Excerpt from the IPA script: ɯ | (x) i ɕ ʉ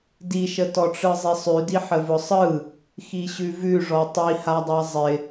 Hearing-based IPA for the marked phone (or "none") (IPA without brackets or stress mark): x